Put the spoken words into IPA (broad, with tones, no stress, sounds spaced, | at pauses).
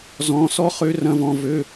z ɔ̃˧˥˧ s ɔ˥ χ ø˥ r ɐ̃˥ v ɔ̃˥ v ø˧˥˧